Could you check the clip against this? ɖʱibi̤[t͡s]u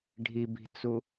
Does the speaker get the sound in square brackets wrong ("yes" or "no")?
no